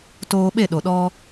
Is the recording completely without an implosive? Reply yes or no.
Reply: no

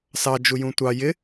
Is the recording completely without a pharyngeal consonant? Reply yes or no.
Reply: yes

